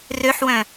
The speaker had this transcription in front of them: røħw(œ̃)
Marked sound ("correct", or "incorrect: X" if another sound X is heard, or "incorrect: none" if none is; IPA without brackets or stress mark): correct